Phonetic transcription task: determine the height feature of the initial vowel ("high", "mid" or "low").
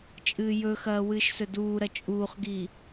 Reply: high